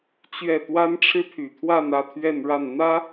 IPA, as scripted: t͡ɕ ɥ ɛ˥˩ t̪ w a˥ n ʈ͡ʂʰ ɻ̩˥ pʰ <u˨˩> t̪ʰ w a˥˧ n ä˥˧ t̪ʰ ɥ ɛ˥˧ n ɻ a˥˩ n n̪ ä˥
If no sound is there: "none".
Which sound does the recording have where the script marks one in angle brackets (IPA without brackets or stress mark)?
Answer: y˨˩